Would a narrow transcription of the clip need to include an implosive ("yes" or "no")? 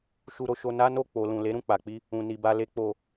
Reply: no